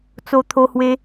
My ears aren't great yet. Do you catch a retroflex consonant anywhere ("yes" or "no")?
no